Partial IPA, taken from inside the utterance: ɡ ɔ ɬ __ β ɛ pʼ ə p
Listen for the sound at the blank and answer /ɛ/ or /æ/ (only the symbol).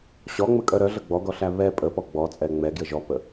æ